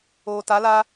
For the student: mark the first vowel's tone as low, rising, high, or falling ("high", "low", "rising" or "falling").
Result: low